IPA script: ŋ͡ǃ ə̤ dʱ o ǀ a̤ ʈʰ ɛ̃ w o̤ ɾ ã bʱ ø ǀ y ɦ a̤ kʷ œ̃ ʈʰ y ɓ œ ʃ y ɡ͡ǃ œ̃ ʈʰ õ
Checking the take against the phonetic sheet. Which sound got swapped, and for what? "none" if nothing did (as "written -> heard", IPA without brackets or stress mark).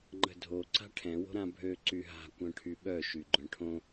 none